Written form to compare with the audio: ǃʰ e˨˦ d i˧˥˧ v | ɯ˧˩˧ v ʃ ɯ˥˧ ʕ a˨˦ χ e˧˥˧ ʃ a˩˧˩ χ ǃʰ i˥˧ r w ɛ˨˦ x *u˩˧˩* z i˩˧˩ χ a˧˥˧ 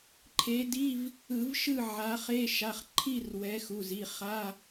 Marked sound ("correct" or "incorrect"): correct